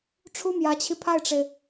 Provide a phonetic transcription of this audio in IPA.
ʈ͡ʂʰ u˥ m j ä˧˥ t͡ɕʰ i˧ pʰ a˥˩ ɪ̯ ʈ͡ʂ e˩ ɪ̯

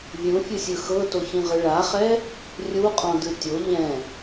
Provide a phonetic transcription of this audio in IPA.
vʲ ũ fʲ ɯ sʲ ɯ x ɤ t o ç ĩ ʁ ɯ ɭ a χ ɛ | rʲ u qʼ ɔ̃ d ɯ tʲ o ʎ ɛ̃

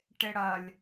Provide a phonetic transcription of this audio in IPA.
ʈ ɪ ɽ ɐ lʲ

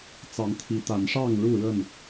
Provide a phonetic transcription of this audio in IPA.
t͡s ɑ˨˦ ŋ t̪ʰ i˨˦ t̪ a˨˦ n ʂ ɑ˥˨ ŋ ɻ u˥˨ ɻ ə˥˨ n

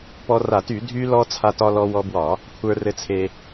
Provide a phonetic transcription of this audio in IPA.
p ɔ˧ r a˧˩˧ t y˧˩˧ dʱ y˧ l ɔ˧ t͡sʰ a˧ t ɒ˧ l ɔ˧ w ɔ˧ b w ɒ˧˩˧ | kʷʰ ə˞˧ r ɘ˧ t͡sʰ e˧

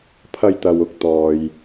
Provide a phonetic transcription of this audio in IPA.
pʰ ɐ˧ j t̪ ɐ˨ w ʊ˨˥ k̚ t̪ ɔː˨ j

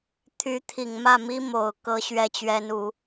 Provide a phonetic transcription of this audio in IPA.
t̪ʰ y˧˥ t̪ʰ i˨˩ ŋ m ä˥˩ m i˥ m o˨˩ ʊ̯ k ɤ˧˥ ɕ ɥ ɛ˥ t͡ɕ ɥ ɛ˥ n u˧˥

